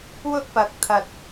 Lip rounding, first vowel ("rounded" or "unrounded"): rounded